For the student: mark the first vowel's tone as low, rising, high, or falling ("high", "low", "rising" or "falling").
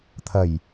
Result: low